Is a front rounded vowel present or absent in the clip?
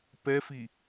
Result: absent